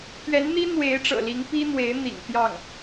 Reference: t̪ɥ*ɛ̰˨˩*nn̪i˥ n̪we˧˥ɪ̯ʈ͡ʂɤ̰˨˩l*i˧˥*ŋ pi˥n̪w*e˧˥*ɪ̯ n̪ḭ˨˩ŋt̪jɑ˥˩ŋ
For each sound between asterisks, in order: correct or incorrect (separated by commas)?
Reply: incorrect, correct, correct